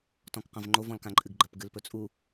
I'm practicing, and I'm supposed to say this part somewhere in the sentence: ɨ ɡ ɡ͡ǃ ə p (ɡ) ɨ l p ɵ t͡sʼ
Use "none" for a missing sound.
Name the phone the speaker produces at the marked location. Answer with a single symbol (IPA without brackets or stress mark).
ɡ